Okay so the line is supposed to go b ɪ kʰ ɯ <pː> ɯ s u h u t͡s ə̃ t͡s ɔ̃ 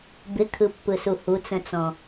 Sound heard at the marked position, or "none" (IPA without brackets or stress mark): pː